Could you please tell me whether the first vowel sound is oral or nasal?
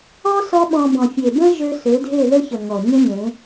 oral